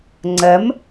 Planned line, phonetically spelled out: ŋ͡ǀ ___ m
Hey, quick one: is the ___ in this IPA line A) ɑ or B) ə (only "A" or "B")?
B